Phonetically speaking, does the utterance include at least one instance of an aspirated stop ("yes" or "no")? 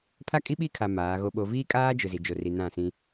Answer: yes